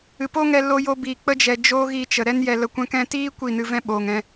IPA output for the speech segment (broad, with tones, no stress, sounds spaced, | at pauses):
ɨ˨ p o˦ ŋ ɛ˧ l o˧ j o˧ b iː˨ k͡p ə˧ d͡ʒ ɛ˨ d͡ʒ oː˦ ɣ iː˧ t͡ʃ ə˨ ɾ ɛ˦ n j ɛ˧ l ə˧ kʷ ɛ̃˦ k ɛ̃˧ t iː˦ kʷ i˦˨ n ɨ˧ v ɛ̃˦ ɓ oː˨ ŋ ɛ̃˧